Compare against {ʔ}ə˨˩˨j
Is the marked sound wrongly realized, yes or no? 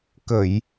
yes